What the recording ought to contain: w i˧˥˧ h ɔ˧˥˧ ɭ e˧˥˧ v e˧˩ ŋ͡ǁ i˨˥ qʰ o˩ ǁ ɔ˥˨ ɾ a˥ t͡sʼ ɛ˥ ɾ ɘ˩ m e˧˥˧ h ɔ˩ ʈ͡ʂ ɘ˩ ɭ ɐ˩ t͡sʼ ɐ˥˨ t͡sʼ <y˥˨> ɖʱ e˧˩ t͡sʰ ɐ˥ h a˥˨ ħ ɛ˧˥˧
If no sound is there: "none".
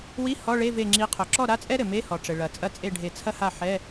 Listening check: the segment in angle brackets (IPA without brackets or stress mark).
e˥˨